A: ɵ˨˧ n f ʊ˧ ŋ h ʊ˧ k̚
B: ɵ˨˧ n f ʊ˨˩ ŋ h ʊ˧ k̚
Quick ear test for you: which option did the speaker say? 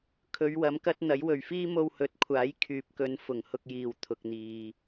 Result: B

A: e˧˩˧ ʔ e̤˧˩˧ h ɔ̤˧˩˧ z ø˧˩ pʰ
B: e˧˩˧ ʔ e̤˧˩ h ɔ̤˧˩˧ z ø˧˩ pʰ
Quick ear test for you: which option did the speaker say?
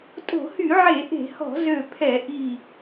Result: A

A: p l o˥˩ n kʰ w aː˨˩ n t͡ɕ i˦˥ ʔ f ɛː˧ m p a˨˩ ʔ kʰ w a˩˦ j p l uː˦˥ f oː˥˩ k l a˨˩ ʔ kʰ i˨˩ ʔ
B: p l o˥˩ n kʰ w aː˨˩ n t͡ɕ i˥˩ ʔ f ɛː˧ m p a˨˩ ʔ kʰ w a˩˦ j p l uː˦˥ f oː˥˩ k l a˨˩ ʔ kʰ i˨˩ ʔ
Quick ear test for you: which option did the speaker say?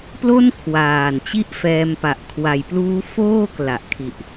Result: B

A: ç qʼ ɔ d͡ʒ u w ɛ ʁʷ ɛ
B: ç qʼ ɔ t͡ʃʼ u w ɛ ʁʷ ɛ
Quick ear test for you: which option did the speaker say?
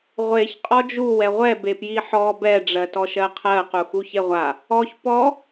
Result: A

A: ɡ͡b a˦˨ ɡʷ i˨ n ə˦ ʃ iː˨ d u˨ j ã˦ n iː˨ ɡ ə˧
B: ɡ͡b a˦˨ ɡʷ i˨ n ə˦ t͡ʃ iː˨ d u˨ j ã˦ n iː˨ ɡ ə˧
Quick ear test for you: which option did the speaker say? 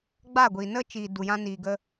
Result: B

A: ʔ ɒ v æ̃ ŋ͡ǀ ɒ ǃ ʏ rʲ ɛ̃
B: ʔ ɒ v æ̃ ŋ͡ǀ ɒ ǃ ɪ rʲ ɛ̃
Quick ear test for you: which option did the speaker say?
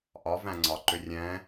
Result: A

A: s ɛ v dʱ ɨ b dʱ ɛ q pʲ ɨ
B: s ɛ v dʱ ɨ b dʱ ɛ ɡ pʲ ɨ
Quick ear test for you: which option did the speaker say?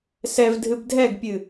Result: B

